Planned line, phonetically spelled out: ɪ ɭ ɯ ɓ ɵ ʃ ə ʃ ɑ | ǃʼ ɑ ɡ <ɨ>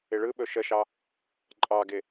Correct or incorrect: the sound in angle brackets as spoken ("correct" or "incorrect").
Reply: incorrect